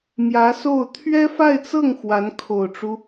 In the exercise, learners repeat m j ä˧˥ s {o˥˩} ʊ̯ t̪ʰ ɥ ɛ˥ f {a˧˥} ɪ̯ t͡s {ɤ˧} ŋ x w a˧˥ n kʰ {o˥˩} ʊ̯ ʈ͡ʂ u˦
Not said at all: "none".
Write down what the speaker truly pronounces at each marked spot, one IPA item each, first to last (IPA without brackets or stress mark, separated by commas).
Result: o˥˩, a˥˧, ɤ˥˩, o˨˩